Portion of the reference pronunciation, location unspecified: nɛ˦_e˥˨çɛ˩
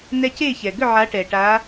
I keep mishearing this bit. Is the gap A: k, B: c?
B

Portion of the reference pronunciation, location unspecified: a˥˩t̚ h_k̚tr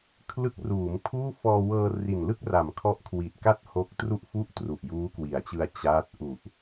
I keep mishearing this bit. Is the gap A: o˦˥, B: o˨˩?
A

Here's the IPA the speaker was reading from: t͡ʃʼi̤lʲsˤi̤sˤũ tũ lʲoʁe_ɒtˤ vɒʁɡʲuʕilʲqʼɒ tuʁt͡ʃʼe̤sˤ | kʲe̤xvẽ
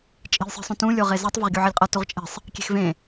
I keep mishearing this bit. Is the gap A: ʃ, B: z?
B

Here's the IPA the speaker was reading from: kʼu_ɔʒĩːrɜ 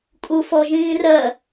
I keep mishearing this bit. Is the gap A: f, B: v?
A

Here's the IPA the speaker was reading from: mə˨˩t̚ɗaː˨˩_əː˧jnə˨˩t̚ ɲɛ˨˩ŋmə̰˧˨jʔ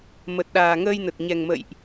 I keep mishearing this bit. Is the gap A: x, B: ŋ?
B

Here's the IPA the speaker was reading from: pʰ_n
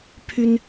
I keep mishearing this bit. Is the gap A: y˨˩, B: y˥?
B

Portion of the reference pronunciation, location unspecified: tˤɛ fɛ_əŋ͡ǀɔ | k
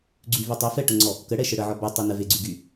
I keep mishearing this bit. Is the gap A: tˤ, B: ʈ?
B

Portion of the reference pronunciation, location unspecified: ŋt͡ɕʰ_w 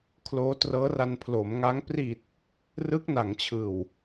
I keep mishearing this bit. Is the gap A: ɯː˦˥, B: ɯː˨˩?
B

